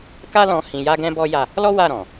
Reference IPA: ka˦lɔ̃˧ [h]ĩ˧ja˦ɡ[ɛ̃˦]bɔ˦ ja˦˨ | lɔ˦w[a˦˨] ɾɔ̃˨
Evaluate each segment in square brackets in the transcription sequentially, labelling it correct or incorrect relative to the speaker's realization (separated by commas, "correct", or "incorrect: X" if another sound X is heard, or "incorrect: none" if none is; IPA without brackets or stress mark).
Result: correct, correct, correct